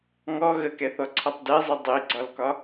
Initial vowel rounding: rounded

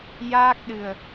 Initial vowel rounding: unrounded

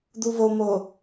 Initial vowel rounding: rounded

